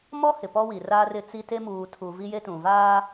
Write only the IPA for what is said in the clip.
mɔ˦ hɪ˨pɔ˦wi˨ raː˦rɪ˦t͡si˦ te˦muː˨tʰu˨ vi˦je˦ tũ˨vaː˦

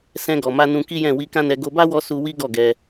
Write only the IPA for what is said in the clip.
sɛ̃˧ɡɔ˨ma˧ nũ˧ki˦jɛ̃˦˨ wi˧kã˦nɛ˧ ɡo˧ba˦wɔ˧ su˧ wi˦ɡɔ˦˨ɡɛ˧

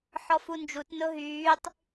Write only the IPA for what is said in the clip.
ħɔfund͡ʒut nʊɦyːtˤ

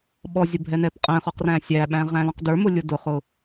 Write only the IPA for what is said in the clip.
ɓɔzʲʊ bʱɛnɛpqʼɛ̃χɔq ræ̃sʲæɓæ̃ ʁæ̃lɔ̃qdə˞mʊ lʲʊdʊχʊ

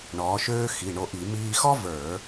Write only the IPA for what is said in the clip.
ɳɔː˩˥ʃøː˥ xi˩˧˩ɳo˧ʔi˧˩˧ miː˧xɔ˥və˞˧˩˧

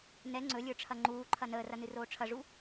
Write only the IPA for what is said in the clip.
nɛ ŋ͡ǀɵlʲə˞ʈ͡ʂʰɐ ŋ͡ǃuːǃʰɐ nəːrɐnɨroː ʈ͡ʂʰɐʐu

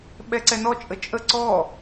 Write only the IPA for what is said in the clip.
ɓɛǀɛnɔ t͡ʃʼət͡ʃʼə ǀɔ

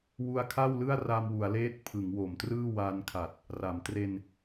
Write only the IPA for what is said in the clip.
wu˧a̯kʰa˥˩w lɯ˥˩a̯ra˧mwu˩˦a̯leː˦˥t̚ pʰɯ˩˦ŋwo˩˦mtrɯː˥˩ wa˧nkʰa˨˩t̚ | ra˩˦mtre˧n

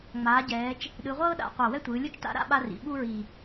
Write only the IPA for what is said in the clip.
ŋ͡maː˩˧ɟɛː˩˧t͡ʃ | ɗɯ˩˧ʁʷɤː˥ɗa̰˩˧ qʷa˨˩wɛ˥tʷɯː˩˧lʲu˥t͡ʃ ta̰˥ ɾa̰˥ɓa˥rḭ˩˧ ɓu˥ɹi˨˩

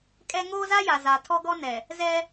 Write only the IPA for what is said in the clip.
kʼɛ˦ ŋoː˦za˦ja˨za˨ tʰɔ˦ɡɔ˦ nɛ˨ | zɛ˦

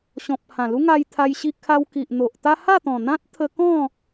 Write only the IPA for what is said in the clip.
ɕɔ̃˨p̚ hã˨˩lu˦ŋa˧j t̪ʰa˧jɕi˧ kʰa˧wki˨ʔn̪o˨ʔt̪a˦ ha˥˧t̪ɔ̃˨˩n̪ã˦t̚ t̪ʰə˧kɔ̃˥˧

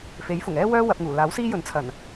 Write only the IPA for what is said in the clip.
fe˨˥jfʊ˨˩ŋɛː˥wœː˥ wɐ˧p̚ŋuː˨˩ laː˨˥wsiː˥jɵ˨˥nt͡sʰɐ˨˩n

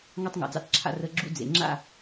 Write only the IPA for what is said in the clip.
ŋɑ˦tˤŋɑ̰˨d͡zɑ̰˦t͡sǁʰa̰˦ rə˦ ɡ͡ǁṵ˦ d͡zḛ˨ ŋ͡ǁa̰˦˨

